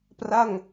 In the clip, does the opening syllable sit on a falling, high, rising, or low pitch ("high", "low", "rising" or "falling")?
falling